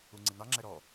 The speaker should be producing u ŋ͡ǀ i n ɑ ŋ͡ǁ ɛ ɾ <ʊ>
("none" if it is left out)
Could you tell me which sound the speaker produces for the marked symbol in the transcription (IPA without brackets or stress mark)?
ɔ